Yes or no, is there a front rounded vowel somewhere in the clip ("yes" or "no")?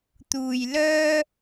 yes